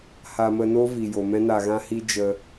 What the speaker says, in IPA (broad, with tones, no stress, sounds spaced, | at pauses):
h a˧ m ə˧ n o˦ v i˨ j o˨ m ɛ̃˦ n a˧ ɣ ã˦ h i˦ d͡ʒ ə˧